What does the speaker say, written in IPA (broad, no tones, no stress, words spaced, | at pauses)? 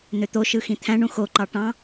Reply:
n̪øt̪oʃɯ xĩt̪ʰæ̃ɳũ xoǃɑ ʈɑ̃